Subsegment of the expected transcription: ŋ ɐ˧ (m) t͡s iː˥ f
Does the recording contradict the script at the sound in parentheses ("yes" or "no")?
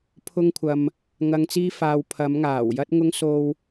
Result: yes